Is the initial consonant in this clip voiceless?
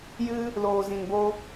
no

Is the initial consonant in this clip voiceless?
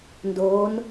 no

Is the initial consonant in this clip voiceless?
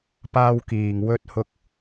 yes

